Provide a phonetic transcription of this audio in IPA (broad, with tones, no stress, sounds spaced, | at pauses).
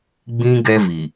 ɡ͡b ĩ˦ ɡ ɛ˦ v i˨